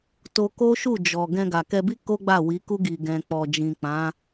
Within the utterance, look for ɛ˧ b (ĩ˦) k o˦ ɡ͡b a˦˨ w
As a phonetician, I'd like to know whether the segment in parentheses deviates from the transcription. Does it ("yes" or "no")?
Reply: yes